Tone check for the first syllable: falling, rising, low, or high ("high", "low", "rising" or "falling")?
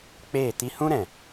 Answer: falling